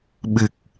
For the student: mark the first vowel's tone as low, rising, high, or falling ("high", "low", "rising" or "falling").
low